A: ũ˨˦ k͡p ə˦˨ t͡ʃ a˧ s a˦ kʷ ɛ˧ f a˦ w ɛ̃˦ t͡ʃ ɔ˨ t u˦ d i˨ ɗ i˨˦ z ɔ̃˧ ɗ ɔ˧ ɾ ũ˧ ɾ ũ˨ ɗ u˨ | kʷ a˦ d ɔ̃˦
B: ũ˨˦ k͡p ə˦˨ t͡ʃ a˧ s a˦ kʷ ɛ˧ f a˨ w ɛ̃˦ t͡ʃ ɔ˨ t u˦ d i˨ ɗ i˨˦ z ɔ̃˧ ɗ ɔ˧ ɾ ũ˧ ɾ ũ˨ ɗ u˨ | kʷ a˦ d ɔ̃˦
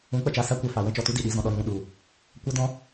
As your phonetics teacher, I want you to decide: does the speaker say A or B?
B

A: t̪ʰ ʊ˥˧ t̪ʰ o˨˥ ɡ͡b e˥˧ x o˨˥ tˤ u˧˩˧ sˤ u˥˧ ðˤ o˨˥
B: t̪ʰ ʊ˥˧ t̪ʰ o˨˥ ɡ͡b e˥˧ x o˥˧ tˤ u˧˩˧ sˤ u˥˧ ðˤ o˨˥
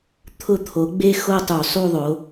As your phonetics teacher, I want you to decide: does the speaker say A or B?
B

